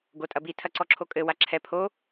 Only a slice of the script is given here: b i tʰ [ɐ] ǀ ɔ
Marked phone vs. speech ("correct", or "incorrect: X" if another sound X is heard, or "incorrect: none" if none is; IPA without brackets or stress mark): correct